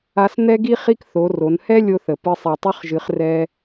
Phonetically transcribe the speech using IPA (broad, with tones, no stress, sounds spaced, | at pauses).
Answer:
a˧ s n̪ ɛ˥ ɡ i˥ χ i˥ k θ o˩˧ r o˩˧ n h ɛ˥ lʲ o˧ θ ə˩ p ɨ˧ sˤ i˩ tˤ ɨ˧˥ χ ʒ ɨ˩˧ χ r ɛ˧